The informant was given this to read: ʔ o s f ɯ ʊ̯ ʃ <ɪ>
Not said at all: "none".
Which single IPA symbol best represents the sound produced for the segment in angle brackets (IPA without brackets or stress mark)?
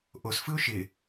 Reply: ɪ